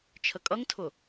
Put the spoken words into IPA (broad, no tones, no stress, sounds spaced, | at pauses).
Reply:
t͡ʃʰ ə kʼ ʌ ŋ tʰ ʊ